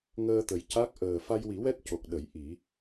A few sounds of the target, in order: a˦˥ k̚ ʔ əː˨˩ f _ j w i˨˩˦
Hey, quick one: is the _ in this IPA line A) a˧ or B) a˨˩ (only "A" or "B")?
A